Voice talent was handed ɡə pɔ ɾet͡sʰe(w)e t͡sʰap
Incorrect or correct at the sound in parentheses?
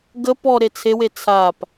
correct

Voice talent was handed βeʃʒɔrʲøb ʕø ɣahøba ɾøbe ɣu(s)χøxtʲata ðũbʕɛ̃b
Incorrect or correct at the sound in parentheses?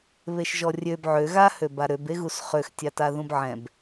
correct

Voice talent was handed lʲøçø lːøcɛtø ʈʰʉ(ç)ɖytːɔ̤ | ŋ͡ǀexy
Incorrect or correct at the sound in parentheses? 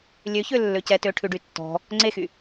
incorrect: none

